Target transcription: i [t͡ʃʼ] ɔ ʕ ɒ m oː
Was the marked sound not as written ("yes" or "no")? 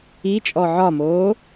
no